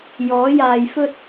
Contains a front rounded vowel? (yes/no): no